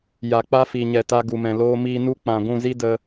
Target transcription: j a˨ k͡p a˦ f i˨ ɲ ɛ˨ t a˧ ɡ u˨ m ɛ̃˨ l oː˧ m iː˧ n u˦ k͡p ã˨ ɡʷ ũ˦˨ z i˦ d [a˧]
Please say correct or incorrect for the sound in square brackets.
incorrect